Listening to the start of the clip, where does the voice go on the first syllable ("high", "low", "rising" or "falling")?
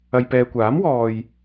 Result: low